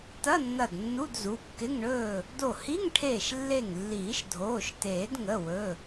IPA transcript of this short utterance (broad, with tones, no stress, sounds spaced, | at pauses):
t ɐ˧˥˧ nː ɐ˧˩ d nː u˧˥˧ d z u˩˧˩ kː ɪ˧˥˧ ŋ ɳ ɵː˥˨ | d o˧˩ h i˧˥˧ ŋ ʈʰ eː˧˩ ʃ lː e˧˩ ŋ lː iː˨˩˦ ʃ dʱ oː˩˧˩ ʃ t eː˨˩˦ d ŋ ə˩˧˩ w ɵ˩˧˩